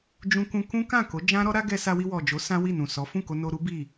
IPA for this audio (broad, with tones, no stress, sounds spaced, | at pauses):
d͡ʒ ũ˧ k ũ˧ k ũ˦ k ã˦˨ k o˨˦ d͡ʒ ã˦ ɾ ɔ˦ ɾ a˦ ɡ ɛ˧ s a˧ w i˧ w ɔ˨ d͡ʒ o˨˦ s ã˦ w i˦˨ n ũ˨ s ɔ˨˦ f ũ˦˨ k o˧ n o˧ ɾ u˦ b i˦˨